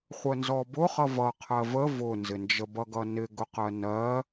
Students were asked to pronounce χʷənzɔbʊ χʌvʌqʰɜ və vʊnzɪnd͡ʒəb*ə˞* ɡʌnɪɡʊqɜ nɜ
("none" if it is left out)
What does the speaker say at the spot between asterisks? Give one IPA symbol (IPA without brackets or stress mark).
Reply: ʌ